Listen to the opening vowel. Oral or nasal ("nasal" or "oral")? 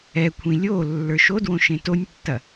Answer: oral